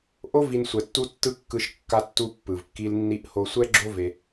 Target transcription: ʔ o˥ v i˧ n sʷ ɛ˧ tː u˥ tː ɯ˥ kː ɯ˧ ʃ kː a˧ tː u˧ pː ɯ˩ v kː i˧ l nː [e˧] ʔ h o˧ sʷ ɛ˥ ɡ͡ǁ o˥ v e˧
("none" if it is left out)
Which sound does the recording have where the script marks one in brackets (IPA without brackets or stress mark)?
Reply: i˧